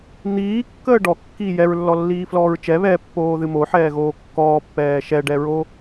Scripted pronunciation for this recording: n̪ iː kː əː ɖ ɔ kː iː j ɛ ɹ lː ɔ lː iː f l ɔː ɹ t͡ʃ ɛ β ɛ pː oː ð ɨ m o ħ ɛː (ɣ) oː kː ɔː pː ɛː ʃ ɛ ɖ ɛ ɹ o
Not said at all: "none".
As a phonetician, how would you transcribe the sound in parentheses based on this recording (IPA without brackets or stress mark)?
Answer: ɣ